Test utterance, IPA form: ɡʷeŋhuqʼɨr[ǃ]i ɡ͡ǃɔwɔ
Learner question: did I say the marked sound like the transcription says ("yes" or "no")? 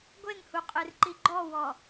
yes